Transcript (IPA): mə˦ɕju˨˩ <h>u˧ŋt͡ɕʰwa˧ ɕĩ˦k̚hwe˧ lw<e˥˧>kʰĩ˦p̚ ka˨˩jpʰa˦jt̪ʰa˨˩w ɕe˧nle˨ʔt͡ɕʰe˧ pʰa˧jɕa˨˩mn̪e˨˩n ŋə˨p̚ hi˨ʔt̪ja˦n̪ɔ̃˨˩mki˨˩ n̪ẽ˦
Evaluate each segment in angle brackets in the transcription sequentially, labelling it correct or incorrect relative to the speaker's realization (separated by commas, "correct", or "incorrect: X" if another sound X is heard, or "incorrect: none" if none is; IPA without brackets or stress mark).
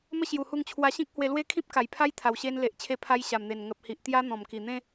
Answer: correct, incorrect: e˦